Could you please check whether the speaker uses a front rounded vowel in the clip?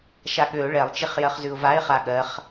yes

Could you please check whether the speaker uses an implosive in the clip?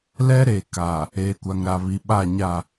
yes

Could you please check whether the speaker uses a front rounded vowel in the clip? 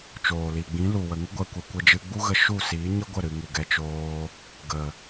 no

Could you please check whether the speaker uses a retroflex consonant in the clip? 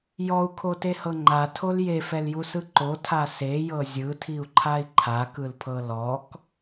no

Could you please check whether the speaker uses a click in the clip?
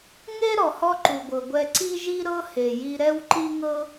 yes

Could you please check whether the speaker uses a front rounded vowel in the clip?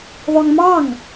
yes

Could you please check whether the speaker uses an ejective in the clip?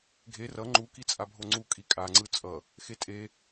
yes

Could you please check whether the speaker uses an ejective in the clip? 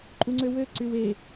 yes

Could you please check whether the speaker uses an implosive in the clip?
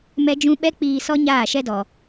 yes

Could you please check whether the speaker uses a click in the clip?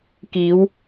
no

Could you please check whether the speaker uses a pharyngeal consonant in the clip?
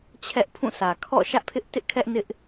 no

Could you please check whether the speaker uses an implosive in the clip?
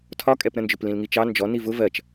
no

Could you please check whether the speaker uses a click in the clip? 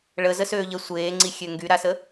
yes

